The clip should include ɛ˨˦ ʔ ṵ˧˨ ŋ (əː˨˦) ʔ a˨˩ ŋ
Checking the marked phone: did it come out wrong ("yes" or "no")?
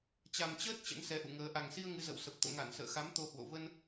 no